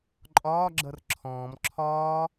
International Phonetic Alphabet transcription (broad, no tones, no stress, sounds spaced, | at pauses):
ǃʼ ɒː ɡ͡ǁ ʌ r ǁʰ ɔ̃ː m ǁʰ ɒː